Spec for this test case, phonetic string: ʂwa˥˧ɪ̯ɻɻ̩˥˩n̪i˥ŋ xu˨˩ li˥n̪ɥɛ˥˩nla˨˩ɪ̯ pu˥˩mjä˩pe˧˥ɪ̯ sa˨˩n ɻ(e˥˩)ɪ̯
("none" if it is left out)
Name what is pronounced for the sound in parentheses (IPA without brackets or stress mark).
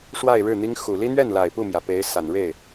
e˥˩